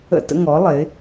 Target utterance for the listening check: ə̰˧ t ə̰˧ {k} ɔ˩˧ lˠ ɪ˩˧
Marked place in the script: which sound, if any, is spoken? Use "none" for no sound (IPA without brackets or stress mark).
ŋ